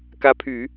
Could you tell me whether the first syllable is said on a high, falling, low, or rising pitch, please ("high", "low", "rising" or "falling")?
rising